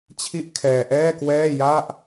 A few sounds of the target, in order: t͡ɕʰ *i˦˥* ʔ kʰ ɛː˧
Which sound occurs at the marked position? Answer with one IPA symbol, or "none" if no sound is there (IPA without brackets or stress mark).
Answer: i˦˥